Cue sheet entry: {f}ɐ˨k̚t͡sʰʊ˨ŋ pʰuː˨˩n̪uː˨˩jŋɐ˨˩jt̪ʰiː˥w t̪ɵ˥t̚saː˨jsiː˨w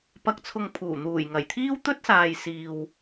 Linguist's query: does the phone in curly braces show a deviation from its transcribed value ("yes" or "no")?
yes